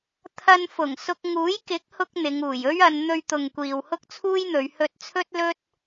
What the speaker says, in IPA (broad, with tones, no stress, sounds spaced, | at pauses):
t̪ʰ ɐ˧ n f ʊ˨˩ ŋ s ʊ˧ k̚ ŋ uː˨˥ j k ɪ˨˥ k̚ h ʊ˧ k̚ n̪ ɪ˨˧ ŋ uː˨˩ j ɵ˥ ɥ ɐ˨˧ n n̪ ɵ˧ ɥ t̪ ʊ˨ ŋ kʷ iː˨ w h ʊ˥ k̚ t͡sʰ uː˥ j n̪ ɵ˨˧ ɥ h ɵ˧ t̚ t͡sʰ ɵ˥ t̚ l ɵ˥ t̚